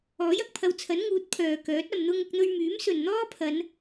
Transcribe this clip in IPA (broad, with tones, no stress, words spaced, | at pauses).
ɔː˨˥jɐ˨k̚pʰɐ˧wt͡sʰɐ˨˥n ŋuː˨˥t̚pʰœː˨kœː˨˥t̚ ɐ˨mn̪ʊ˧ŋʊ˧k̚ n̪ɵ˧ɥmyː˨˥msɵ˨n n̪ɔː˥pʰɐ˨˧n